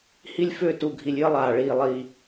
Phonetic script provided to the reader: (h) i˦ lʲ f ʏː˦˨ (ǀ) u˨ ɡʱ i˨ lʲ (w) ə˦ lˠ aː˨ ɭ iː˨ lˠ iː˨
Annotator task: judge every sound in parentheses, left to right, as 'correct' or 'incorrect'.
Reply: correct, incorrect, incorrect

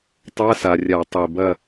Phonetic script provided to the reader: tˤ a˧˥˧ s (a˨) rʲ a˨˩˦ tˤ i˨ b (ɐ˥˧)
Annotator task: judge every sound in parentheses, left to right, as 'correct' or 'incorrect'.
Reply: correct, correct

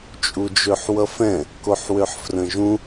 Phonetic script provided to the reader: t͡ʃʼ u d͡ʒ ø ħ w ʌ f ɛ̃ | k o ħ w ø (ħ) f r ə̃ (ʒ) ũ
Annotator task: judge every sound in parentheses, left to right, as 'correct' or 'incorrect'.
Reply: correct, correct

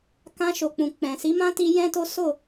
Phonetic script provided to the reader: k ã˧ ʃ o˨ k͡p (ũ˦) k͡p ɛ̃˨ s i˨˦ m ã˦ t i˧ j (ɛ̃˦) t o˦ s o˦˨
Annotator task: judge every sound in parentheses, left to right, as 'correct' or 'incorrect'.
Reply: incorrect, correct

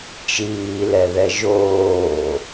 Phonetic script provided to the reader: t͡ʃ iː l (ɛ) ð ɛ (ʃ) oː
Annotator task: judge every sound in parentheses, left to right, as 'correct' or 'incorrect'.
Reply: correct, incorrect

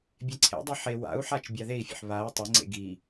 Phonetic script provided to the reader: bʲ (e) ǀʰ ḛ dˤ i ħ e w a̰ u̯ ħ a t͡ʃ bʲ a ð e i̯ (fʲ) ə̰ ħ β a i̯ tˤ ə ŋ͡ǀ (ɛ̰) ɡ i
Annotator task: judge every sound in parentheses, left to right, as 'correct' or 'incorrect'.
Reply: correct, correct, incorrect

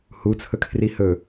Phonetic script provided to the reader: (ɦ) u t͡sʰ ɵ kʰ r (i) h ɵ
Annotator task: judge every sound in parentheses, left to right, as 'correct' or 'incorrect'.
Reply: incorrect, correct

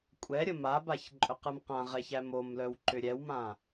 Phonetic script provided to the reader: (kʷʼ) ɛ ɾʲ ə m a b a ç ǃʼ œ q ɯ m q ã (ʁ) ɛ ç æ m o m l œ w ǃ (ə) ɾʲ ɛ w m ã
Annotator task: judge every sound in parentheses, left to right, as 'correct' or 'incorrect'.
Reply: correct, correct, incorrect

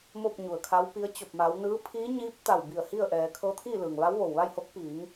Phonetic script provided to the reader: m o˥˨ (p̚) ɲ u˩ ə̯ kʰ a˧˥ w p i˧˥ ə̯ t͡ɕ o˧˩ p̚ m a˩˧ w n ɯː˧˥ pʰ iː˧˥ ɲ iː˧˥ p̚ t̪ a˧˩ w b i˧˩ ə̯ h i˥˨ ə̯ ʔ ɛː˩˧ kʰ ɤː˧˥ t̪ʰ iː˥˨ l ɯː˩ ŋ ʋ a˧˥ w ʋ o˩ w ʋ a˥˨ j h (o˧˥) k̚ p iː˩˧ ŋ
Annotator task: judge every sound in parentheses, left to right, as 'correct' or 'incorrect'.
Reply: correct, correct

